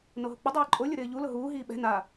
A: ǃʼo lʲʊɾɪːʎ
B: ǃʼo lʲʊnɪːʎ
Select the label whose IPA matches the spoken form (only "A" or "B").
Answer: A